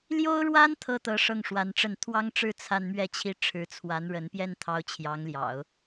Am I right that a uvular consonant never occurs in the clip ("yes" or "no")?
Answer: yes